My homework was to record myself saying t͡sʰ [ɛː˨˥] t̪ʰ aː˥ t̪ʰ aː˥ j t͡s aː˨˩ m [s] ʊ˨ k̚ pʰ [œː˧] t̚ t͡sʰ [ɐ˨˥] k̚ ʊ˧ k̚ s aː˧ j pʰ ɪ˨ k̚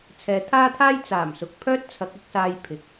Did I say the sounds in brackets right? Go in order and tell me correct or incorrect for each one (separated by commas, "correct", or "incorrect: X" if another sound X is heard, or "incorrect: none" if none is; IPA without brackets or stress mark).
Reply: incorrect: ɛː˨˧, correct, incorrect: œː˥, correct